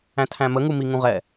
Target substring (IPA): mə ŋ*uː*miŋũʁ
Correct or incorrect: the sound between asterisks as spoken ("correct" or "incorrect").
incorrect